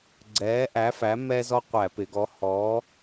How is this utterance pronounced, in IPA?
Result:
ɡ͡ǀ ɛː˨˥ ʔ æ˨˥ f æ˨˥ m ɛ˦ z ɔ˦ qʷ æ˧˩˧ p ɪ˩˧ ɡ ɔ˨˥ h ɔː˨˥

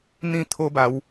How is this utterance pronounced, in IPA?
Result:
n̪ ĩ˥˧ t̪ʰ o˦ b a˨˦ w

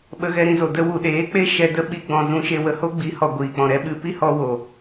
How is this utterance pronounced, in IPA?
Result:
ɓ ə˧ ɣ ɛ˧ ɾ ĩ˧ z o˨ d ə˧ w u˨ ɗ eː˨˦ k͡p e˦ ʃ ɛ˧ d ə˦ ɓ i˦ ɡ͡b ɔ̃˧ z ũ˧ ʃ e˧ w ə˧ h o˦ ɡ͡b i˨˦ h ɔ˨ ɡʷ iː˨ k͡p ɔ̃˨ ɾ ɛ˦ ɓ ɨ˧ p i˦ h ɔ˧ w o˨

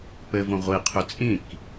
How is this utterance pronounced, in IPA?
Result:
p ɘ v õ ʁʷ i qʰ ø t͡sʼ ĩ k

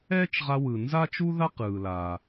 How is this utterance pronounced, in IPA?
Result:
ɛː˥ t͡ʃ ʁ a˧ w ɯ˩ n z a˥ t͡ʃ u˥ ð a˥ q ɯː˩ l aː˩

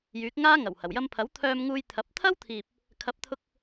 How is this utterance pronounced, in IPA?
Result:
j yː˨˥ k̚ ŋ aː˥ ŋ ɐ˨˩ w h ɐ˨˩ w j ɐ˧ m pʰ ɐ˨˥ w t̪ʰ œː˧ m ŋ uː˧ j t̪ʰ ɐ˨˥ p̚ t̪ʰ ɐ˥ w t̪ʰ iː˨ p̚ | kʰ ɐ˨˥ p̚ t̪ʰ ʊ˧ k̚

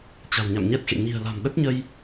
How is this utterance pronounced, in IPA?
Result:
t͡ɕ a̤˨˩ w ɲ a̰˧˨ m ɲ ɛ˦˥ t̚ x ḛ˧˨ ɲ i̤˨˩ ə̯ l a̤˨˩ m ɗ ə˦˥ t̚ ɲ ə˧ j

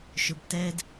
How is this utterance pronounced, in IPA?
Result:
ʃ ʊ˨˦ b t ɛ˦ d

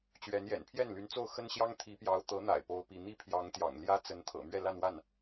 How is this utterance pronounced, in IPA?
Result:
t͡ɕ ɥ ɛ˧˥ n j ɛ̰˨˩ n pʰ j ɛ˥˩ n l y˧˥ n t͡s o˥˩ ʊ̯ x ə˥ n ɕ j ɑ˥ ŋ t̪ʰ i˧˥ p j ɑ˧˥ ʊ̯ t̪ ɤ˧˥ n̪ a̰˨˩ ɪ̯ p o˥ ʊ̯ p i˥˧ n̪ i˥˩ pʰ j ɑ˧˥ ŋ t̪ j ɑ̰˨˩ ŋ l j ä˥ t͡s ə˧˥ n t̪ʰ ɤ̰˨˩ m ɥ ɛ˥˧ l a˥˧ n w a˥˩ n

